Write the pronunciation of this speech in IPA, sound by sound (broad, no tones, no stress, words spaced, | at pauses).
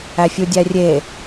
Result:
æfʲudʲærʲe